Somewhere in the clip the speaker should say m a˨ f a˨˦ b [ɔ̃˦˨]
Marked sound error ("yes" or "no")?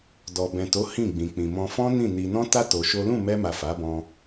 yes